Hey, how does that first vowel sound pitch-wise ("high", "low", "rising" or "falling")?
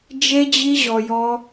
high